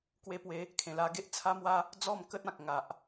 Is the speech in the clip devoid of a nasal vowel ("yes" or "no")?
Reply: no